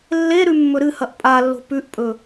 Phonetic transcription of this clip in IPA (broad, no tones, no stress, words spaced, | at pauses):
lːe ɾʉmːɵɾɨhɐʔ pʼalːo̤ pʉʔpʼɵ